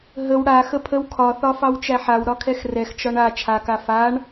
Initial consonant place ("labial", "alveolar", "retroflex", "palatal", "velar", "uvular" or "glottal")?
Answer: glottal